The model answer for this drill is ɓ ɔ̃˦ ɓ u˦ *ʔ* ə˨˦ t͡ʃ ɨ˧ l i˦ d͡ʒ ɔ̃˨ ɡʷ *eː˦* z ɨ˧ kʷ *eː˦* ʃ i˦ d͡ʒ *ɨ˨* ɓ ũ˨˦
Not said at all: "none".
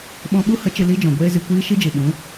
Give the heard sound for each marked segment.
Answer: h, eː˦, iː˦, ɨ˨

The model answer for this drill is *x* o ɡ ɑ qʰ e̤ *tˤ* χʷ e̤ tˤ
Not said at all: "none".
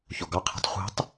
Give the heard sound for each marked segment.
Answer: ç, tˤ

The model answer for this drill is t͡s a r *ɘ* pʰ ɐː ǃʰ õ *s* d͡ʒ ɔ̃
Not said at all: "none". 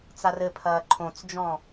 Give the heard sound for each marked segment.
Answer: ɘ, t͡s

